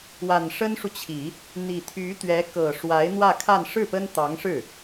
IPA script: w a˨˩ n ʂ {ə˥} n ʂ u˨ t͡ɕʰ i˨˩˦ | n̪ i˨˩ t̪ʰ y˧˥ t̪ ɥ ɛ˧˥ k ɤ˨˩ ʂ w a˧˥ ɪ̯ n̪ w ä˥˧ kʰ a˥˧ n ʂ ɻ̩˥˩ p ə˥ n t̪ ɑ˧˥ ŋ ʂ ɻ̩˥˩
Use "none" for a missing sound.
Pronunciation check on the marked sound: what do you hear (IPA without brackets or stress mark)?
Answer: ə˥